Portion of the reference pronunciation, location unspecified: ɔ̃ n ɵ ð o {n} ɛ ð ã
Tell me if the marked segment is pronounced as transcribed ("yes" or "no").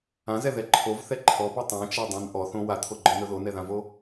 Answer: yes